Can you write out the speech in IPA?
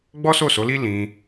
ɡ͡b ɔ˦ s o˦˨ s o˨˦ l i˦ l ĩ˧

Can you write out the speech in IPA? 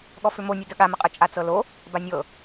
ɠ ɔ f ʏ m o nʲ ɯ d ə ɠ a m ə qʼ ɯ t͡ʃʼ a t͡s ɤ l o | b a nʲ ɤ

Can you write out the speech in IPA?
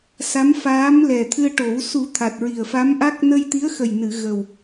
s a˧˥ m f aː˧˥ m l ɛ˨˩ t̪ʰ ɨ˧ ə̯ ʈ o˨˩˦ w s u˨˩˦ t̪ʰ a˨˩ t̚ ɹ i˨˩ ə̯ f a˧˥ m ʔ a˦˥ k̚ n ə˧ j t̪ i˧˥ ə̯ x ə˨˩ j n ɨ˨˩˨ ɣ ə˨˩ w

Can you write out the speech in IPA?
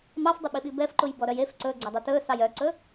m ɑ f dˤ y ɓ i ɓ i b ɛ f ǃ u j b ɔ ɾ œ j e f ǀ ɵ ɡ͡ǀ ɵ dˤ u t ɵ s ɑ j œ ǀ ɵ

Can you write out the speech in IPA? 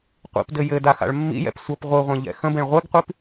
qʷ ḭ p d ɘ j ɘ d a x a̰ ɭ mː ḭ j ɛ̰ p sʷ ʌ p ʁʷ ɯ ʁʷ ẽ ʎ ɛ̰ x ə̃ b ẽ ɭ ʁʷ ɘ ɡ qʷ i p

